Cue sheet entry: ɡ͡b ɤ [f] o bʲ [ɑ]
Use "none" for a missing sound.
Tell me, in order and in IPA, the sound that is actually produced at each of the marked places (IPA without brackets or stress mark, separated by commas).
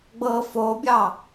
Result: f, ɑ